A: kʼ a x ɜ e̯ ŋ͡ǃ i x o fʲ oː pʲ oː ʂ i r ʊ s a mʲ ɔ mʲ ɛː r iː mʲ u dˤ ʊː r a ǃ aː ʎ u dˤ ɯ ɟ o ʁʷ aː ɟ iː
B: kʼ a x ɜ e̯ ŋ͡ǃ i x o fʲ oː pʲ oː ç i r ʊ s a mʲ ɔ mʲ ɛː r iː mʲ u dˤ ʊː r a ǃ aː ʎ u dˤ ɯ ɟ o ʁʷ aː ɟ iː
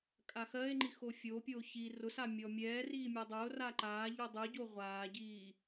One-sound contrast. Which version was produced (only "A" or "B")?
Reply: B